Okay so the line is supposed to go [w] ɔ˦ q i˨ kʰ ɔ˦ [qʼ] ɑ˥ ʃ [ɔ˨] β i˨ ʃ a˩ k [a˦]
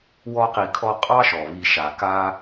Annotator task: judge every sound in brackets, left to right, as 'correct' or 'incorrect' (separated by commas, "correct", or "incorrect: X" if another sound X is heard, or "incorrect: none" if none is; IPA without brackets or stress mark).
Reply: correct, correct, incorrect: ɔ˩, correct